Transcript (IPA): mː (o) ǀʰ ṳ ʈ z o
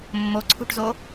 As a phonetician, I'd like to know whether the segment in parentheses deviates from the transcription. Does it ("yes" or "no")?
no